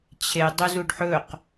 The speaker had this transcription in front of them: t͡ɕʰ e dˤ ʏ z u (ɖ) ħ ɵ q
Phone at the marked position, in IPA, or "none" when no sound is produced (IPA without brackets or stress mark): ɖ